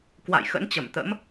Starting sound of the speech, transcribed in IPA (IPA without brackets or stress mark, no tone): k